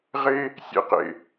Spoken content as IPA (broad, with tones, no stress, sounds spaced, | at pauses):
ʁ e˧ | sʲ ḛ˧ q ḛ˨